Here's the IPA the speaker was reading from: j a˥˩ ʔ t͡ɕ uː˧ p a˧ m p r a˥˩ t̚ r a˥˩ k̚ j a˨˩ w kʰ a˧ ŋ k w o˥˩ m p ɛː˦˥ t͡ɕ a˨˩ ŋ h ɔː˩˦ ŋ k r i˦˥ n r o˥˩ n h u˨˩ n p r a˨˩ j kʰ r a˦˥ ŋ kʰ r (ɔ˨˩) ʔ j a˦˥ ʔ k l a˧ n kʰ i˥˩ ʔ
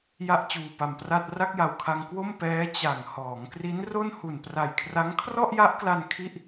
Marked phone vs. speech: incorrect: ɔ˥˩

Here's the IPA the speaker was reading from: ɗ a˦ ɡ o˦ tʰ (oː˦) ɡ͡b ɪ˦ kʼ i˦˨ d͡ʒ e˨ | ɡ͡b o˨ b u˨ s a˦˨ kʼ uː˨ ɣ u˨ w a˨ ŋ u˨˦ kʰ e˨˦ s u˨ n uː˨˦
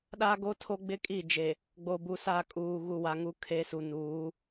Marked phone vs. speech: incorrect: o˦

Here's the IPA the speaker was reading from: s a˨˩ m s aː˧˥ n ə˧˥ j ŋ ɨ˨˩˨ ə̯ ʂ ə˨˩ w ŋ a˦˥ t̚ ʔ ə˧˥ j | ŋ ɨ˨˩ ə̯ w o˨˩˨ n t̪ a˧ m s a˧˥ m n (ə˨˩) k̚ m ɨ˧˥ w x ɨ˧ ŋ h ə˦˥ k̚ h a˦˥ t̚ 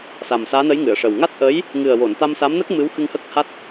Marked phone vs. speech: incorrect: ə˦˥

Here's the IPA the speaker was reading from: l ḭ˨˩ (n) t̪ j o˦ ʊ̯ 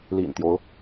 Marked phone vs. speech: correct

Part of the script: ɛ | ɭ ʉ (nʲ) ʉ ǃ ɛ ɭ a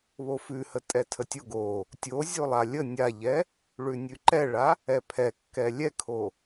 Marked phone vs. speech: correct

